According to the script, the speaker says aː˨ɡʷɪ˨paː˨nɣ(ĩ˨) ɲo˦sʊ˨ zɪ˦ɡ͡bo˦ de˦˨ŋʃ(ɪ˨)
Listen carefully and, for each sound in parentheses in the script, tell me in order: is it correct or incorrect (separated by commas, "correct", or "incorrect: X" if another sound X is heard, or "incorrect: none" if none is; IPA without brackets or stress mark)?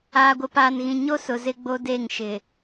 correct, correct